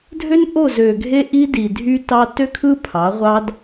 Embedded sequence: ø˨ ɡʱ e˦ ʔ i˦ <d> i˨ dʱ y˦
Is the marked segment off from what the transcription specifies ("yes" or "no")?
no